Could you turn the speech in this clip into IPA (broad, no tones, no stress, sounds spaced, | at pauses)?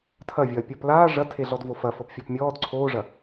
tʰ ɐ vʲ ɐː pʲ ɔ p l aː ʐ ɐ tʰ e ɮ ɔ d v o f ɐ f ɤ p fʲ ɔ p mʲ ɔː d ǀʰ oː ʐ ɐ